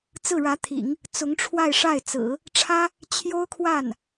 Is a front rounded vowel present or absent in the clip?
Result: absent